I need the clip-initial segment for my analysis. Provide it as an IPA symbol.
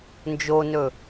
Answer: n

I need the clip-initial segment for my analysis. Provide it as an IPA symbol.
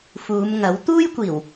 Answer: f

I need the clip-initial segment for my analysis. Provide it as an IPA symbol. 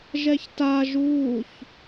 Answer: ʒ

